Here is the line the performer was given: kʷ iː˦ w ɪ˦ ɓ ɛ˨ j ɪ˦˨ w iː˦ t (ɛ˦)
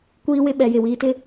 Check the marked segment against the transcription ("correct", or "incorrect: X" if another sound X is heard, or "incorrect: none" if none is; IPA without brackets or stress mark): incorrect: ɪ˦